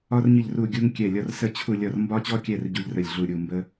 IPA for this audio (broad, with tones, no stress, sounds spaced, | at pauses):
ɒ˦ r ɲ ə˦˨ ʎ r u˦˨ ɡʲ u˦ ŋ kʲ ɛ˦˨ lʲ ɒ˦ r s ə˦˨ t͡ɕʰ u˦˨ lʲ ɒ˦˨ r m b ɒ˦ t͡ɕ ɔ˦ kʲ ɛ˦˨ r ɟ u˦ ʎ r ə˦˨ lʲ ɮ u˦˨ ɾʲ u˦˨ m b ə˦